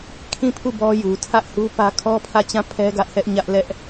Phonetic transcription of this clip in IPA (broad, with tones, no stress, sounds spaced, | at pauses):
kʰ ĩ˦˨ pʰ u˦˨ b ɔ˦ j u˨ tʰ ä˦ ʔ h u˦ p ä˦ kʰ ɔ˦ pʰ ä˦˨ t͡ɕ ã˦˨ pʰ ɛ˦ ɡ ä˦ ʔ h ɛ˦ ʔ ɲ ä˦ ʔ l ɛ˦ ʔ